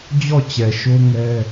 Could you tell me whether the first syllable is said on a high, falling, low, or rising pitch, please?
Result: falling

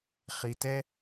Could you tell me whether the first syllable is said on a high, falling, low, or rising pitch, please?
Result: low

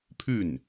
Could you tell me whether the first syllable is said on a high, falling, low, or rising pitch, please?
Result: falling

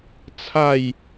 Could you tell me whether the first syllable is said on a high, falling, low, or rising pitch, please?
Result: falling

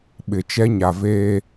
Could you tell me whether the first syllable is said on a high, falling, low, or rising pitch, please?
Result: low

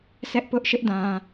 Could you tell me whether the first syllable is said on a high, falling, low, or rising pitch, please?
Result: high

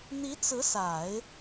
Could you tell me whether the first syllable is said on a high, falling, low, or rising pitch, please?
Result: rising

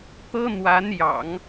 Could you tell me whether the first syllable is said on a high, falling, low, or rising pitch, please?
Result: high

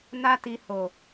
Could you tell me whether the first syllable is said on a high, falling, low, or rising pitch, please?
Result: high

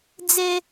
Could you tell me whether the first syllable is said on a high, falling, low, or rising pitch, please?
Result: high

